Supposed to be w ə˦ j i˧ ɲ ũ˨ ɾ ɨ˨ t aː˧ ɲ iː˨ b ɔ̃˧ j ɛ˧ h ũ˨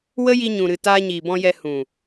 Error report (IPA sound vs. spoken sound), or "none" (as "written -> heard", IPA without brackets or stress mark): none